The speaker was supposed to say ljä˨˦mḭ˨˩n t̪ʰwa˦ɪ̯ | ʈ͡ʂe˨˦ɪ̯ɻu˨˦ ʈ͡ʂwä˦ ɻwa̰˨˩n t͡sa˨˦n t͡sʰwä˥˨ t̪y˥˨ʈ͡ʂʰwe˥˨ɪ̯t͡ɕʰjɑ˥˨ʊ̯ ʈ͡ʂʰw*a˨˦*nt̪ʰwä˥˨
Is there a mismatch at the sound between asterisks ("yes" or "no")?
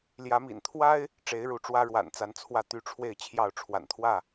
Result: yes